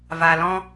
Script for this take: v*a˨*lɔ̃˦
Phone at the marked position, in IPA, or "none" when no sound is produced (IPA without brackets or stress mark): a˨